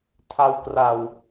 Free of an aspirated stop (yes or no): no